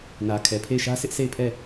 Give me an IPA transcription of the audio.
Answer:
n ä˨ kʰ ɛ˨ pʰ e˦˨ ɪ̯ ʃ ä˦ sʰ ɪ˦ ʔ s e˦˨ ɪ̯ pʰ ɛ˦˨

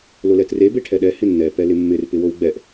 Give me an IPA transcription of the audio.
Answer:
l o l ɛ t r e b e ʈʰ ɛ ɗ ɛ h ɪ nː ɛ p ɛ l ɪ mː ɪ r p ɪ w o w ɡ͡b ɛ ʔ

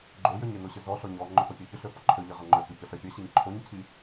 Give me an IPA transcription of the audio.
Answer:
ɡ͡ǃ o j ø ɲ ɪ n o ɕ ʏ z ɔ ɬ ɔ ɲ ɔ ŋ͡ǃ ʏ f œ pʲ œ ç ʏ ɬ ø f ɔ ǃʰ ø ʎ i ʁ ɐ ŋ͡ǃ ø k ʏ ç œ ɬ œ fʲ ɐ ɕ i ɲ ǃʰ o ɲ cʰ i

